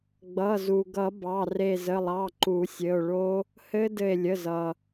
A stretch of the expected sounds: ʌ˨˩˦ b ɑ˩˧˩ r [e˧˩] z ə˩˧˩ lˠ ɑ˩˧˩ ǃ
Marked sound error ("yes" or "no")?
no